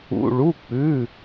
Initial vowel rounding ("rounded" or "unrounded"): rounded